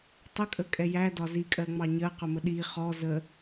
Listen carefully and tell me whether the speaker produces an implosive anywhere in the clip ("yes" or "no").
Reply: yes